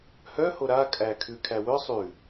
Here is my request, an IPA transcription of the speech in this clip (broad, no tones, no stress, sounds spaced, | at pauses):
h œ h o ɾ a kʼ æ kʰ ʉ kʰ æ w œ sˤ ʉ